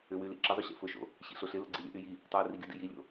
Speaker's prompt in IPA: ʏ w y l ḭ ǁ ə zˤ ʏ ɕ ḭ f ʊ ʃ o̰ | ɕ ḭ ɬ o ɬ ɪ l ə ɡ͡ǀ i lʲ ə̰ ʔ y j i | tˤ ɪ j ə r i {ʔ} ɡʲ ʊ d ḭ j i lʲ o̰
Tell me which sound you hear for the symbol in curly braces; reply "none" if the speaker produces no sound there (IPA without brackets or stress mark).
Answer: none